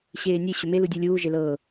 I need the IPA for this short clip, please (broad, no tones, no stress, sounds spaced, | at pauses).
ɕ eː nʲ e ɕ ʏ m e l u dʲ u lʲ uː ʒ e l ɤː